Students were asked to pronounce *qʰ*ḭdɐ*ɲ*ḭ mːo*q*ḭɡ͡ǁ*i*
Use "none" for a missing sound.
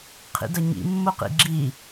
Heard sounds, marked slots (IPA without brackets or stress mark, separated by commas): qʰ, ɲ, q, i